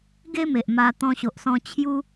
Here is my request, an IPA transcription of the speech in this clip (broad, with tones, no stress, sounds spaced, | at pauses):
ɡ e˦ m e˨ ʔ m a˧ t̪ ɔ̃˧ ɕ o˨ ʔ s ɔ̃˧ t͡ɕʰ j u˦